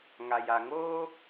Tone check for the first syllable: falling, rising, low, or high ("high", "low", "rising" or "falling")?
low